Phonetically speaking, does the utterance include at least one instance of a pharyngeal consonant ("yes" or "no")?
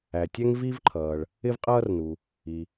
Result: no